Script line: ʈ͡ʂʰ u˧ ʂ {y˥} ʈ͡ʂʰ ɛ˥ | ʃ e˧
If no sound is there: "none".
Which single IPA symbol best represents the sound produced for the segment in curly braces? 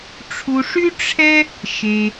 y˥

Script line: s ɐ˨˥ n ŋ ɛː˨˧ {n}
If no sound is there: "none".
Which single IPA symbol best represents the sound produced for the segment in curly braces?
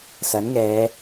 none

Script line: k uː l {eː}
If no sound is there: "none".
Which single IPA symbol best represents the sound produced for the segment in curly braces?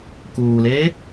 eː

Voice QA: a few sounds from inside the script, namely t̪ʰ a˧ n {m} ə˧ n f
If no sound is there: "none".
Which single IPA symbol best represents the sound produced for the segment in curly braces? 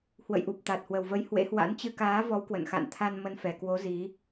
m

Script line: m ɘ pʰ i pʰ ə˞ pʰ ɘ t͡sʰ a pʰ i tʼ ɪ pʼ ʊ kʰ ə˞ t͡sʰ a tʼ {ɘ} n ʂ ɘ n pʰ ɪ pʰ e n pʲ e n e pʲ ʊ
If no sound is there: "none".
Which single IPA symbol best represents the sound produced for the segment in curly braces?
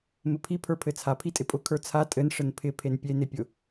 ɘ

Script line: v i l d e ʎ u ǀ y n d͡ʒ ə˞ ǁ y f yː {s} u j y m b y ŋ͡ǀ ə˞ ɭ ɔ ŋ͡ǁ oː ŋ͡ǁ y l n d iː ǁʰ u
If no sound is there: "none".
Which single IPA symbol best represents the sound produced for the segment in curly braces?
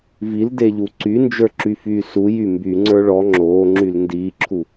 s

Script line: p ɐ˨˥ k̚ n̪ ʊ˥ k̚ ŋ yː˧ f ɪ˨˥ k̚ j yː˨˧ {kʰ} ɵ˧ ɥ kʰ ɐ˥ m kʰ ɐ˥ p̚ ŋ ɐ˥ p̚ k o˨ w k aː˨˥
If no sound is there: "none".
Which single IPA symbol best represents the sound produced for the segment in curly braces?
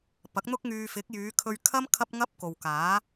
kʰ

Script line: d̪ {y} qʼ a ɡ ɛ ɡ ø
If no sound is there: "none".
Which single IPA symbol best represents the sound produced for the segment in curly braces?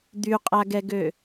y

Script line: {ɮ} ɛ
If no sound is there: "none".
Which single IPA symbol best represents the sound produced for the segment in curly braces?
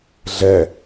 ɮ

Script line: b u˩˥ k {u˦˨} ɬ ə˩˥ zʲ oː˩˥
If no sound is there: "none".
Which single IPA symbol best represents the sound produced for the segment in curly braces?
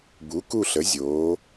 u˦˨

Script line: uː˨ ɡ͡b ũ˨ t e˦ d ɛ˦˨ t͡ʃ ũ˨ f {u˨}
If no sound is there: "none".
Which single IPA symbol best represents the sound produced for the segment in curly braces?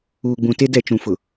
ʊ˨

